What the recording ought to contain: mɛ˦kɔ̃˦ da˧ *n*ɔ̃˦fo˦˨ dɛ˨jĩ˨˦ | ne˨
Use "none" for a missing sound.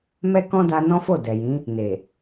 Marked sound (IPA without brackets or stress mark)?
n